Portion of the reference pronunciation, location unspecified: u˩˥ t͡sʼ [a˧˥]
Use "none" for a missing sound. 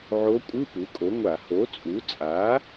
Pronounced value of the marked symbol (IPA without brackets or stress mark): a˩˥